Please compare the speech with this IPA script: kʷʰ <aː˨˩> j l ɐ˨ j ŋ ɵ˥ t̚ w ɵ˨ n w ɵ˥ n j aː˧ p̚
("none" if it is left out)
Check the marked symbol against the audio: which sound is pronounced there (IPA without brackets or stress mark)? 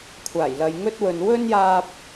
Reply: aː˨˩